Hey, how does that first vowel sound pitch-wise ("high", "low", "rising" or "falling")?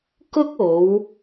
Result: high